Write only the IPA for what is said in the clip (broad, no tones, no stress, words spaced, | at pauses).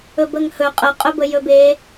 ɵbəŋhɵ qʼəqʼɵbə jɵbe